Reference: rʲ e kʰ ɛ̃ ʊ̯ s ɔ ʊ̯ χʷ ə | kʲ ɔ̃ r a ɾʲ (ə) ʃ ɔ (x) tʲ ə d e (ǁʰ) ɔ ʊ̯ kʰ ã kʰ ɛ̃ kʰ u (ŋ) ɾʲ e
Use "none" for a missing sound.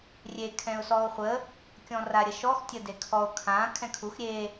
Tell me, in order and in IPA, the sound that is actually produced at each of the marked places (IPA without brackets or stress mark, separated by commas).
ə, x, kʰ, x